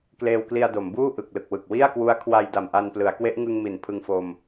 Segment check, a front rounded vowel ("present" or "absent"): absent